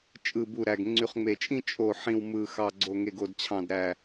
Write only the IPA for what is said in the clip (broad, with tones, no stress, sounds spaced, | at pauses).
t͡ʃʼ ɯ˨˩ b u˨˩ ɾ æ˨˩ ɡ ŋ͡ǀ y˨˩ χ ŋ͡m e˨˩ t͡ʃʼ ĩ˥˧ t͡ʃʼ o˨˩ ħ ĩ˨˩ w m ɯ˨˩ x ɑ˨˩ ɡ͡ǀ o˨˩ ŋ e˨˩ ɡ o˨˩ d t͡ɕʰ ɑ̃˨˩ d ɾ æ˨˩